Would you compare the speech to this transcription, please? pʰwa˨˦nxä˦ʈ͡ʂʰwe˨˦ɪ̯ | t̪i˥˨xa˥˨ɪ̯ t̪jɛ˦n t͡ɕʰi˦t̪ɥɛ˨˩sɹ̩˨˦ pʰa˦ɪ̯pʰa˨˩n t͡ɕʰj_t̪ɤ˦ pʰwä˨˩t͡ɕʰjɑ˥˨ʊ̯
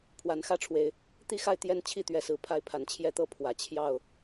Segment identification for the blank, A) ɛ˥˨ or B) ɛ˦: A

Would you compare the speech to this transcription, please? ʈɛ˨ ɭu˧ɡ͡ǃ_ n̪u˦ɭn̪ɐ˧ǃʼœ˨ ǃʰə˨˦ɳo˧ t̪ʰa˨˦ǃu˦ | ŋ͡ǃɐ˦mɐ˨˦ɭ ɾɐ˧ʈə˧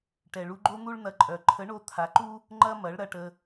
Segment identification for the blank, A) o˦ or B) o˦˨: A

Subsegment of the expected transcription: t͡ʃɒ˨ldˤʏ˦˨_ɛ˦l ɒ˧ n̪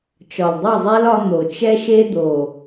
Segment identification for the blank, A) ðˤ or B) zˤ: B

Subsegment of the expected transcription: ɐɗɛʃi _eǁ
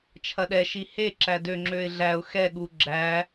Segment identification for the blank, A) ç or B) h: B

